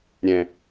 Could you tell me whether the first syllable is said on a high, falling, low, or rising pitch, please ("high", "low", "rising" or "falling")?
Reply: low